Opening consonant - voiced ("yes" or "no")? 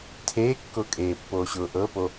no